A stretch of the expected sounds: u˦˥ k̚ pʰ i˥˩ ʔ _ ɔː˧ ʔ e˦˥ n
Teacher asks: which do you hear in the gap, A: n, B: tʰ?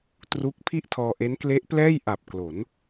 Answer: B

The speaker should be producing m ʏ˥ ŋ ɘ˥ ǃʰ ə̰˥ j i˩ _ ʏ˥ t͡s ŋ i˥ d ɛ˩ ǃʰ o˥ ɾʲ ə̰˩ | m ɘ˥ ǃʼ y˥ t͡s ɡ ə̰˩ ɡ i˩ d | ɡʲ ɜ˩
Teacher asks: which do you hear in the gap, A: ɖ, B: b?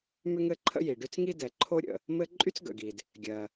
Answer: A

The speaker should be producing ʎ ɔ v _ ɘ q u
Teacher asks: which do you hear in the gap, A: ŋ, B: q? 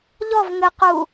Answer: A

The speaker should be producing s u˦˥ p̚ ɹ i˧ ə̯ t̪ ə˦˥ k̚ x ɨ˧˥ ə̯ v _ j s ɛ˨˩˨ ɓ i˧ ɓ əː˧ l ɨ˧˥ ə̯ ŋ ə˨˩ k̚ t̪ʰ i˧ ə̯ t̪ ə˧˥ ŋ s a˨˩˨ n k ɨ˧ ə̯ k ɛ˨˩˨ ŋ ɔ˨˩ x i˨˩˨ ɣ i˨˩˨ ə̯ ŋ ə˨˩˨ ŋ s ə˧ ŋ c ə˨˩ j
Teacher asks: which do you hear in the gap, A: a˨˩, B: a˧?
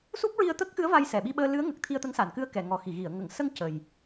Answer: B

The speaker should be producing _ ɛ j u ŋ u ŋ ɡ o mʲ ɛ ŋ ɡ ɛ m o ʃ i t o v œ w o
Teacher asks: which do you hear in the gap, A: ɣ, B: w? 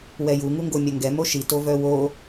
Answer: B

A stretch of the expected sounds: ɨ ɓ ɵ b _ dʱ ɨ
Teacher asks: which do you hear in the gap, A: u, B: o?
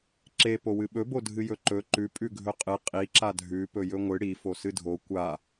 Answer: B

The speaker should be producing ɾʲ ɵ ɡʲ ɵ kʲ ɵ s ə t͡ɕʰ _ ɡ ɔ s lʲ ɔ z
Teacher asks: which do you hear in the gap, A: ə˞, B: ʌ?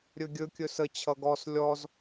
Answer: B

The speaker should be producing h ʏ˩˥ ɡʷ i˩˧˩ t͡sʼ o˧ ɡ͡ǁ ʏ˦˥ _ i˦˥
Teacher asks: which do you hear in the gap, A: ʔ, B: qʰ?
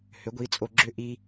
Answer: A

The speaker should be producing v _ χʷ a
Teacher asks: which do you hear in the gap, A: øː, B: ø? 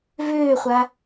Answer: A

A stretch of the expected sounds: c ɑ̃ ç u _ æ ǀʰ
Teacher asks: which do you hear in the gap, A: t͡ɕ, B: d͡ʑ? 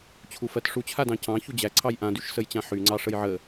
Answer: B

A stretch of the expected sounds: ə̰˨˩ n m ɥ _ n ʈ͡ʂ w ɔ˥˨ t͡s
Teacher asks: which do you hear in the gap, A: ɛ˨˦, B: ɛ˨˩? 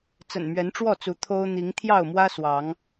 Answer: A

